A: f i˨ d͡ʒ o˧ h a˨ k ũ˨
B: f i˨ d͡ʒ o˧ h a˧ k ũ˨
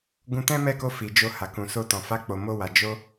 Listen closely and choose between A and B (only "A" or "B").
A